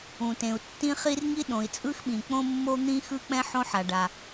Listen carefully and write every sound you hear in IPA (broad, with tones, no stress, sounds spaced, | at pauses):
ũ˩ t ẽ˩ u̯ tː ĩ˥ χ i˥ r ŋ i˥ ɗ õ˩ i̯ t͡sʼ ɯ˥ x ɓ ĩ˩ k͡p õ˥ mː o˥ n̪ ĩ˥ x ɯ˥ k͡p ɛ̃˥ ħ õ˥ ħ a˩ ɖ a˩